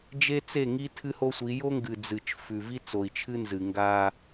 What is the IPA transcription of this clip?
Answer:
d͡ʒ e˦ t͡s e˦˨ ŋ i˦ tʰ ɨ˦ h o˦ sʷ i˨˦ j o˦ ŋ ɡ ɨ˨ d͡z ɨ˨ t͡ʃ f ʉ˨ v i˦ t͡s o˨ i̯ t͡ʃʰ ɨ˦ n z ɨ˨ ŋ ɡ a˦

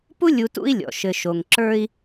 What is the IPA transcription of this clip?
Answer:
p u˥ lʲ u˨ t ṵ˦ i̯ lʲ ɔ̰˩ ʃ ɘ˨ ʃ o˨ ŋ ǁ ə˞˦ i̯

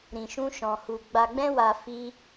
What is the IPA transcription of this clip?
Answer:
ɾ ĩ˧ ʃ ũ˦ ʃ ɔ̃˧ h u˧ ɡ͡b a˧ ɡ͡b ɛ̃˦ w a˧ f i˦

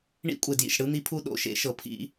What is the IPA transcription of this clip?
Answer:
ɳ ḭ˧˥˧ kʷʼ e˩ d j ḭ˩ ʃ ɽ ɯ˧˥˧ n̪ i˧˥˧ pʰ u˦˨ ɗ o̰˧˥˧ ʃ ḛ˧˥˧ ʃ ɤ˩ pʰ ḭ˦˨

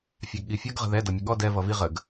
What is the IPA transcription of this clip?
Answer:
fʲ ɑ ɡ ɠ i fʲ ʌ ɡ ʁ ə̤ ð ɛ d ʌ mʲ ʊ ɠ ɔ d ɛ v ʌ v i ʁ ə ɡ

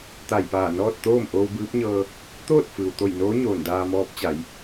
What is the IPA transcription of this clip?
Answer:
t̪ a˧˩ j p aː˧˩ n ɔː˥˨ t̚ t̪ oː˥˨ m ʔ oː˧ w b ɯː˧˥ p̚ ɲ ɤː˧ | t̪ oː˥˨ t̚ f ɯː˩ w t̪ o˧˩ j n oː˧˥ ɲ oː˧˩ n d aː˧ m ɔː˧˥ p̚ t͡ɕ a˩˧ j

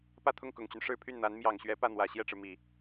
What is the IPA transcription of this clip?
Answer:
p ä˥˧ t̪ʰ ʊ˥˩ ŋ k ʊ˨˩ ŋ t͡ɕ y˦ n ʂ ɻ̩˥˧ pʰ y˥˩ n n̪ a˧˥ n m j ɑ˨˩ ŋ ɕ ɥ ɛ˧˥ p ä˥˩ n̪ w ä˨˩ ɕ j ɛ˥˩ ʈ͡ʂ ɻ̩˩ m i˨˩˦

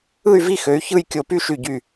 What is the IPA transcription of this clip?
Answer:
ɯ˥˧ y̯ v i˥˧ x ø˨˦ y̯ ç ɯ˥˧ j kʲ o˧˩ p y˥˧ ʃ y˧˩ ɟ y˧˩

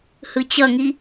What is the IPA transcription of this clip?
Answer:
h ɯ t͡ɕ ʌ ŋ i

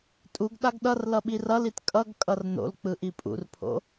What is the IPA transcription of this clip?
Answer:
tʼ u ɡ ɗ a ɡ ɗ ʌ r l ʌ ɓ i r ʌ l i t kʼ ʌ ɡ kʼ ʌ r n o̰ l k͡p ɯ ʔ i pʼ ṵ r pʰ o̰

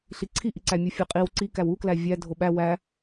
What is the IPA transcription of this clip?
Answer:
ɬ i ǀʰ i ʔ i ǀ æ mʲ u fʲ e qʼ i w ǀ i k æ w u k l æ vʲ æ dʱ o ɓ æ w æ

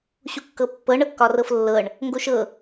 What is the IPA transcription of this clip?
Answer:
ɕ u kː ɤ pː ɤ ɳ ɤ kː ɒ r ɤ f lː ɤ ɳ | ŋ ɡ o ʃ ɤ

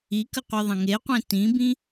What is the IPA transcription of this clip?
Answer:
i k ə qʷ ə˞ ðˤ ə̃ ŋ e qʷ ẽ t ĩ b ĩ

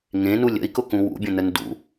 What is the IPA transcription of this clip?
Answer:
ŋ ẽ n u lʲ ə̰ i̯ k ʊ k ũ w ṵ bʲ ə̃ n ə n d ṵ

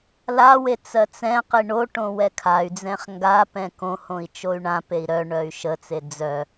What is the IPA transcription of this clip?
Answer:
l a w e t͡s ɜ t͡s ɛ̃ q i ɳ o ʈ õ w ɛ kʰ a y̯ d͡z ɛ̃ χ ŋ ɡ a p ɛ̃ k õ h õ i̯ t͡ʃ o y̯ ɳ ã p e i̯ ɾ œ ɳ œ y̯ ʃ ə t͡s e d͡z œ

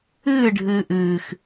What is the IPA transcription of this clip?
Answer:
ɨː ɖʱ ɨː ʔ ɨː x

